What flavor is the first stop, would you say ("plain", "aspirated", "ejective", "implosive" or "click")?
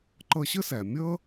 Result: click